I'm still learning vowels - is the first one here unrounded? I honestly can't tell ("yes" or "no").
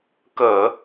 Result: yes